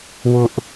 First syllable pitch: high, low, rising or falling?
high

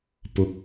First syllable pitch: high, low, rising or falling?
high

